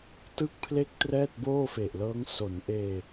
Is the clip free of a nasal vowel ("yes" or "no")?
yes